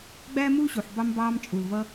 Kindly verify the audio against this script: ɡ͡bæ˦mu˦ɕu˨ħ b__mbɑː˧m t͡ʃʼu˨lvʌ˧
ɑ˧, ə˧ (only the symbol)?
ɑ˧